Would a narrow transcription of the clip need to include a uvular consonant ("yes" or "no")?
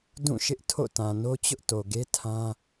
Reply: no